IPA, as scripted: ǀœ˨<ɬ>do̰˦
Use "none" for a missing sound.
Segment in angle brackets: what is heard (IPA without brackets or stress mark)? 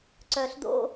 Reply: ɬ